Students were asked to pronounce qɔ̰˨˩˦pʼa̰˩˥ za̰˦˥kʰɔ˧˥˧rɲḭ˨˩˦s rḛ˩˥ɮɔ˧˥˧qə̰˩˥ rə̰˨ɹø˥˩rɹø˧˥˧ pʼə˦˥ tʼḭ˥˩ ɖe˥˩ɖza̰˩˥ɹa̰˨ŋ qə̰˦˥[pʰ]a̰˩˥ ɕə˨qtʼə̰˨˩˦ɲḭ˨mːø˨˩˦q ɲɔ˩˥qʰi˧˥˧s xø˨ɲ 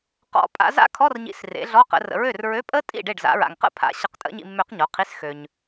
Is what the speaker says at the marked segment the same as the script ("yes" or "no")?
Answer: yes